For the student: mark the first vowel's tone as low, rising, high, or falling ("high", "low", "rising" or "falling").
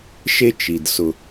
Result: high